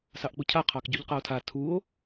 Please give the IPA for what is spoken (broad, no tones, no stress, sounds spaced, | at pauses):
s ɑ ʔ k͡p u cʰ a qʰ ɑ k ɟ u ʎ q a o̯ tʰ a tʰ u o̯